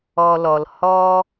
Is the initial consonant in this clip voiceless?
no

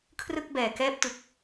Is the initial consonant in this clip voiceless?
yes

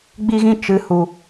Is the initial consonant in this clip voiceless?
no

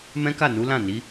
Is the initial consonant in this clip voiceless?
no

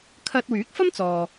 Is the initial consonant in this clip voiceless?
yes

